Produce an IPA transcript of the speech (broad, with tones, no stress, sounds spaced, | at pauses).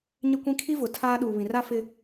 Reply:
ɲ ɪ˦ kʷ ĩ˦ kʰ i˦ v ʊ˨ tʰ aː˦ ɗ uː˨ β ĩ˨ r a˦ f ɪ˦